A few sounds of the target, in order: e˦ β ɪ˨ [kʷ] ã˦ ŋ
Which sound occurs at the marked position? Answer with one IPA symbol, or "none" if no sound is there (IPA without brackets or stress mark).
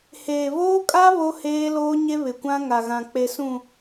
kʷ